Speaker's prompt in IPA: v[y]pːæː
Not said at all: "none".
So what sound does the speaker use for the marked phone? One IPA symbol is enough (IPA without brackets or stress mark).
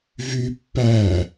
y